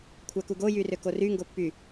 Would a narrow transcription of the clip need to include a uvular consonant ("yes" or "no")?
no